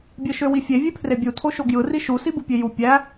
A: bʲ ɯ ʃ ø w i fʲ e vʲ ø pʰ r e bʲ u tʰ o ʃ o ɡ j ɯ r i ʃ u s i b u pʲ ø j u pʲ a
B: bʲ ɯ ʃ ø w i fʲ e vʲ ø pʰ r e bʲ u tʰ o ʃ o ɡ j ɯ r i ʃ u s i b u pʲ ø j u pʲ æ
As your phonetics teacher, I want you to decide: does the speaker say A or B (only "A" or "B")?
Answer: B